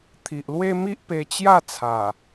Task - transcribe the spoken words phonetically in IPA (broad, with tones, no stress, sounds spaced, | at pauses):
t̪ʰ i˨ ʔ l w e˦ m i˦ ʔ p e˧ t͡ɕ j a˥˧ t͡sʰ a˨˩